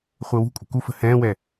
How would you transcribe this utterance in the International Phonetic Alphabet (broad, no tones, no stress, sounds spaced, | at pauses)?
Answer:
χʷ əː w ṳ kʷʼ ə̤ k u f ə̤ h ɛ̃ː w ɛ